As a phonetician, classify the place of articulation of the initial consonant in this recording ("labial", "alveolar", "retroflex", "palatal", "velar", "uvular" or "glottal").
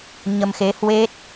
palatal